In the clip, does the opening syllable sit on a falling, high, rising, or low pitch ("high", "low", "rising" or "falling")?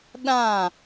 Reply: falling